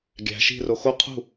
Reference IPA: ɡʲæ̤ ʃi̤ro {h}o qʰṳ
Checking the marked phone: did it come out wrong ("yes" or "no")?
yes